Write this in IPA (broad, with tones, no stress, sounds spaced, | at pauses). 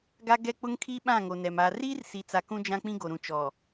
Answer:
ɡ a˦ ɡ ɛ˦ k͡p ʊ˦ ŋ kʰ i˦ ɓ ã˦˨ ŋ o˨ n ɛ˨ m aː˨ r iː˦ r s i˨ t͡s a˨ k ũ˦ d͡ʒ ã˦ k͡p ĩ˦ ɡ o˨ ɾ ũ˨ t͡ʃ ɔ˨